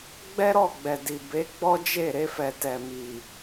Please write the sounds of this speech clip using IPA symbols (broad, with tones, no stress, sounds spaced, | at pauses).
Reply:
ɡ͡b ɛ˦ ɾ ɔ˦˨ ɡ͡b ɛ˨ d i˨ b e˨˦ ɡ͡b ɔ˦ d͡ʒ e˦˨ ɾ e˧ f ɛ˨ t ɛ˨ m i˨